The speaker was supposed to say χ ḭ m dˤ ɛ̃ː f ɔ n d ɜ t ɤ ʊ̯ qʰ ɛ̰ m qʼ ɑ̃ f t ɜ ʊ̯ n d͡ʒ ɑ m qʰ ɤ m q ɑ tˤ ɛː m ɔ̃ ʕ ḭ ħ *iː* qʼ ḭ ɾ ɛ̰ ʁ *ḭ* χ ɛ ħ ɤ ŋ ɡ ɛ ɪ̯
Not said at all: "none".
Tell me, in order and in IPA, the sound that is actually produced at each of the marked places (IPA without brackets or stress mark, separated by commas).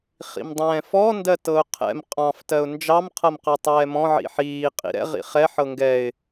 iː, ḭ